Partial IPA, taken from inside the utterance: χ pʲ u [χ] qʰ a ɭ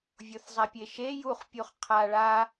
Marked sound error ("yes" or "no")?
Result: no